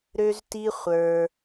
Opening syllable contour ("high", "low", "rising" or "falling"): high